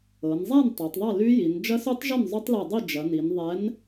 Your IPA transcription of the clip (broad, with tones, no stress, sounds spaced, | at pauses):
ɤ˩˧ n zˤ a˥˨ n tˤ ɤ˩˧ tˤ ðˤ ɐ˥˨ l y˦˥ j i˩˧ n d͡ʒ ɐ˦˥ s y˦˥ tˤ ʒ ɐ˥˨ n zˤ y˦˥ tˤ l i˧˩ dˤ i˥˨ d͡ʒ ɐ˩˧ n i˩˧ n ðˤ ɛ˨˥ n